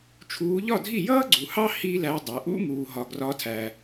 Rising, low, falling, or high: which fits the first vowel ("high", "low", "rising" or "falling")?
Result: rising